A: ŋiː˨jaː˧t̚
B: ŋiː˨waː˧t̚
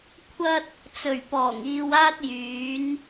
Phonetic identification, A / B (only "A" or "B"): B